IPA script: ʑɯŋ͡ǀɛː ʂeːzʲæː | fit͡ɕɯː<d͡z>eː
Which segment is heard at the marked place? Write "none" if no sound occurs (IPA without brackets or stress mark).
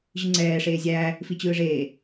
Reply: ʐ